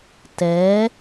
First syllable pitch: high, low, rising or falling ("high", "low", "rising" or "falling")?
rising